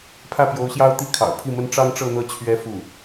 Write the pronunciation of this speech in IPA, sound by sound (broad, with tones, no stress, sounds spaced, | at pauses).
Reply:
pʰ ä˥˩ p j o˧˥ ʊ̯ ɕ j ɑ˥ ʊ̯ t̪ i˥˩ kʰ ɑ̰˨˩ ʊ̯ pʰ i˥˩ m ə˥ n ʈ͡ʂ ɑ˥ ŋ ʈ͡ʂ ɤ˥˧ n̪ ɤ˥˩ t͡ɕʰ ɥ ɛ˧˥ f u˥˩